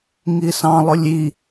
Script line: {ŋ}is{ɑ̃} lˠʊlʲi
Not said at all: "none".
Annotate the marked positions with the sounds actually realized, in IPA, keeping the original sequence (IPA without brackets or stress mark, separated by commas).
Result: ŋ, ɑ̃